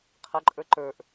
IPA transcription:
qʰ ə ǃʼ ə˞ ǃ ə˞ ʔ

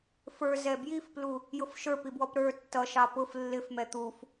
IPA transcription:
f ə˞ z ɛ b j i f p l u | j ʊ f ʃ ə˞ p i b w ɔ p ɾ ə˞ tː ʌ ʃ ɑ p ʊ f lː ɪ f m ɛ t̪ u f

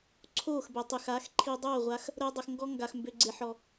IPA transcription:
ǀʰ oː˦˨ x b ɛ˨ tˤ y˨ x a˨˦ x ǃʰ i˧ dˤ oː˦˨ ʁʷ a˧ x | ɾ əː˦ dˤ ə˧ x ŋ ɡ ɔ˦ ŋ ɡ a˨ x m b ø˨ ɡ͡ǀ e˨ ħ ɔ˨

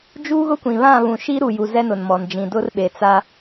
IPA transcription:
d͡ʒ uː˦ ɣ ʊ˦ kʷ ĩ˨ β ã˦˨ β ũ˨ ʃ iː˦ ɾ u˨ j u˨ z ɛ˦ n ʊ˨ n m ɔ˨ n d͡ʒ ĩ˨ d ʊ˦ r ɓ e˨ t͡s a˦

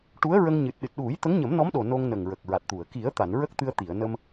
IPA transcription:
ʈ u˧˥ ə̯ ɹ ə˧ ŋ ɲ ɨ˨˩ t̚ ɗ ɨ˨˩ t̚ ɗ u˨˩˦ j t̪ ə˧˥ ŋ ɲ ə˨˩˦ m n ɔ˧˥ m ɗ o˨˩ n o˧ ŋ n ə˨˩ ŋ ɹ ə˨˩ k̚ ɹ a˨˩ t̚ t̪ u˨˩˨ ə̯ k i˨˩˦ ə̯ t̪ a˨˩˨ n ɹ ə˦˥ k̚ t̪ ɨ˧ ə̯ t̪ i˨˩˨ ə̯ n ə˧ m

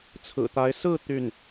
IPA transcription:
t͡sʰ ɹ̩˨˩ t̪ a˧˥ ɪ̯ s ɹ̩˥˧ t̪ y˥˩ n

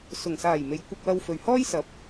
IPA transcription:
s ʊ˨˩ ŋ s aː˨˩ j m e˨˧ j kʷ ɐ˧ k̚ w ɐ˧ w f ɵ˨ ɥ h ɔː˥ j s ɐ˨˥ p̚

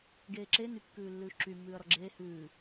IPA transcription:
ɡ eː ǁ e n y kː ʉː lː ʉː ʃ ǁ y mː ʉː ɐ̯ ɾ ɔ ɡ͡ǁ eː h ʉː

